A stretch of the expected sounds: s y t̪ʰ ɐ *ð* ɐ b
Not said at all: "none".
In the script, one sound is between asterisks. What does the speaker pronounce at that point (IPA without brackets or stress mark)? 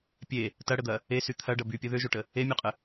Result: ɖ